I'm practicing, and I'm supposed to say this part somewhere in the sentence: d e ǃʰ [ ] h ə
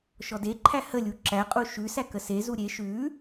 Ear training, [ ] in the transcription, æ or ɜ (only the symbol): æ